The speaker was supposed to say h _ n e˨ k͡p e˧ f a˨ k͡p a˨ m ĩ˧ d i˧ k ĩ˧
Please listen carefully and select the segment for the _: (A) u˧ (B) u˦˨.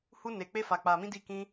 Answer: A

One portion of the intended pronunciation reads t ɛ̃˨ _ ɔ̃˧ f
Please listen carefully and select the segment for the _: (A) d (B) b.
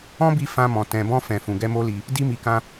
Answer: B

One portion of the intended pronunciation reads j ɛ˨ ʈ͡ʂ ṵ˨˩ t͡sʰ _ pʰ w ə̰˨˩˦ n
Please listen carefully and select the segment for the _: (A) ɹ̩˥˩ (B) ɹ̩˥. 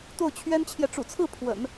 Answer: A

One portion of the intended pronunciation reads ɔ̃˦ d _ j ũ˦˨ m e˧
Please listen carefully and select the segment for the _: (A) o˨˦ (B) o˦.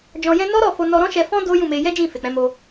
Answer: B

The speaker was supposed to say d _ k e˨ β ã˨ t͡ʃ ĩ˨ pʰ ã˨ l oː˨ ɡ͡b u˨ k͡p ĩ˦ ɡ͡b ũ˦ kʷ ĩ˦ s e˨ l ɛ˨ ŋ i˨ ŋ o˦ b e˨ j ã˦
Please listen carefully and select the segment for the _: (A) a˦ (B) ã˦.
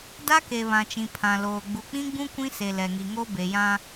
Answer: A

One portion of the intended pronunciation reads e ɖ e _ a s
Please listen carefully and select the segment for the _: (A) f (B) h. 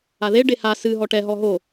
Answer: B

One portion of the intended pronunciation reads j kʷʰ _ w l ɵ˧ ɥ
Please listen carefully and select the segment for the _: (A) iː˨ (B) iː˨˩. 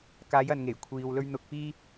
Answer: A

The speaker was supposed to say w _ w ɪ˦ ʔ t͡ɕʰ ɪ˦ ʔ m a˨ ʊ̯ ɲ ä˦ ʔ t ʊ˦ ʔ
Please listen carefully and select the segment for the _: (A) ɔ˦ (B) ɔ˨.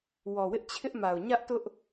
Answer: B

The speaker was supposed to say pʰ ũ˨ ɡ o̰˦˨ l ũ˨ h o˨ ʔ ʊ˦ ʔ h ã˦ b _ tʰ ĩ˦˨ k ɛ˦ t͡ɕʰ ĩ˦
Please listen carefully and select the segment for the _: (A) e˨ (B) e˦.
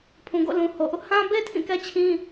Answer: B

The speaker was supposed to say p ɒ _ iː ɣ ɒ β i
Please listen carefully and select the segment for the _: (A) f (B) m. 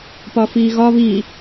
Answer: A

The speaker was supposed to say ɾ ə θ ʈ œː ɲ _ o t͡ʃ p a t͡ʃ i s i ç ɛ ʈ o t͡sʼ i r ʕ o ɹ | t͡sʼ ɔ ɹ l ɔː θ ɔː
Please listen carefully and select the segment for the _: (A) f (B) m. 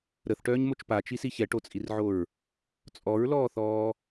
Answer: B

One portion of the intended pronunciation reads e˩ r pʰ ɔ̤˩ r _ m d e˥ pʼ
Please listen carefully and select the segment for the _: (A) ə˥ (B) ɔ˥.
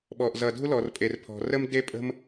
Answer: A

